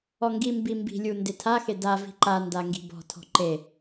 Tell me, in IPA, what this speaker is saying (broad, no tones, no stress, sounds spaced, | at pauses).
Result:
ɔ ŋ ɡ i m b i m b i̤ lʲ u n d e tʰ a x e d a v i̤ ǃ a n d a ŋ ɡ i̤ b ɔ̤ tʰ ɔ̤ ǃ e